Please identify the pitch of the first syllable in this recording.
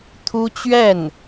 high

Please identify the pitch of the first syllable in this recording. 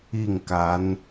falling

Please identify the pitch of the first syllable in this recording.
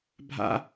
high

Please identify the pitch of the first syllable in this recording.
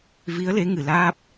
rising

